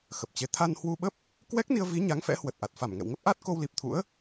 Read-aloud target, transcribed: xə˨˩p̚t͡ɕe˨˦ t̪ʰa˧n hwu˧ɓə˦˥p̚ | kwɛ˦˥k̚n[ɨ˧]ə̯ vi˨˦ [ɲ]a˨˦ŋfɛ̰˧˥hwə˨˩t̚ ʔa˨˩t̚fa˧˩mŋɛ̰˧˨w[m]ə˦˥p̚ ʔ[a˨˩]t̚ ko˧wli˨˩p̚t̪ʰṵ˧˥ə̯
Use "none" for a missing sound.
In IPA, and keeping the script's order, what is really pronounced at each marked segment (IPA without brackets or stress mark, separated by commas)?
i˧, ɲ, ŋ, a˦˥